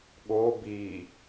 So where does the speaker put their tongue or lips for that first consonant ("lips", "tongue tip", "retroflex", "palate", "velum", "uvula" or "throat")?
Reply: velum